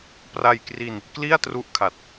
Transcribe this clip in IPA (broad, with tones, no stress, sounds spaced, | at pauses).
p r a˧ j k r i˧ n | k l i˥˩ a̯ t r u˦˥ ʔ kʰ a˨˩ t̚